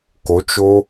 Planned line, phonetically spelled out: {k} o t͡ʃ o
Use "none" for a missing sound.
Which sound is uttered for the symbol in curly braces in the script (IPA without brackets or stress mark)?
k